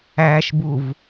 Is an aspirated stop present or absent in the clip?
absent